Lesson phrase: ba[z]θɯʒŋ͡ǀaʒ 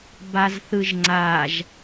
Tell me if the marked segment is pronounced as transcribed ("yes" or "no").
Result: yes